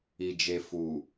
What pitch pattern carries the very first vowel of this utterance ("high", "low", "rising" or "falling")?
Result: low